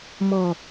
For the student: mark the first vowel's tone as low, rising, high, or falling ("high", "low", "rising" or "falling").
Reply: falling